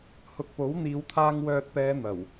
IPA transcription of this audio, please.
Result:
h ʊ˨ k̚ p o˨˥ w n̪ iː˨˧ w t̪ʰ aː˧ ŋ w œː˨ t̚ p ɛː˨˧ n̪ ɐ˨˩ w

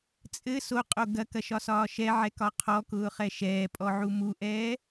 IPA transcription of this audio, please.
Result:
t͡sʼ ɘ s o qʼ o ɡ ɐ k ɐ ʃ ɒ s ɒː ʃ ɛ ʕ ɛ k ɒ qʰ ɔ k ʊː χ ɛ ʃ ɛː pʼ ɔ ʕ u m u ʔ ɛː

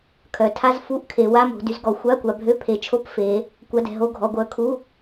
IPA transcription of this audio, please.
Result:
kʰ œ˩˧ tʰ a˧˥˧ z f u˧˥˧ ʔ kʰ e˩˧ w a˧˥˧ m o̤˩˧ d y˩˧ z ɡ ɔ˩˧ xʷ a˧˥˧ kʷ a˩˧ bʱ ø˧˥˧ pʰ e˩˧ t͡ʃʰ o˧˥˧ p f e˩˧ | kʷ a˧˥˧ d ɛ̤˩˧ ɦ o˧˥˧ ɡʱ ɔ˩˧ ɡʷ œ˩˧ kʰ u˧˥˧

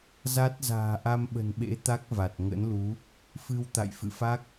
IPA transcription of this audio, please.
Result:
z a˦˥ t̚ z a̤ː˨˩ ʔ a˧ m ɓ ə̤˨˩ n ɓ ḛ˧˥ t̪ a˦˥ k̚ v a˨˩ t̚ ŋ ə̰˧˥ n l u˨˦ | f ɨ˧ w t̪ a̰˧˨ j f ɨ̰˧˨ f a˦˥ k̚

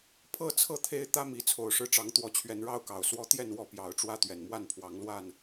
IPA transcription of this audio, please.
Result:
pʰ ɤ˥˨ t͡sʰ ɤ˥˨ t̪ʰ e˦ ɪ̯ t̪ ä˦ m i˨˦ t͡sʰ o˨˩ ʊ̯ ʂ ɻ̩˦ ʈ͡ʂ ɑ˨˦ ŋ t̪ w ɔ˨˦ t͡ɕʰ ɥ ɛ˨˦ n ɻ ɑ˦ ʊ̯ k ɑ˨˩ ʊ̯ s w ɔ˦ t̪ j ɛ˥˨ n w ɔ˥˨ p j ɑ˨˦ ʊ̯ ʈ͡ʂ w ä˦ t̪ ɥ ɛ˨˩ n m w a˥˨ n pʰ w ɑ˨˦ ŋ l w a˥˨ n

